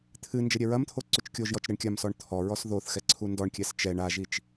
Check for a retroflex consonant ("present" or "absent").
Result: present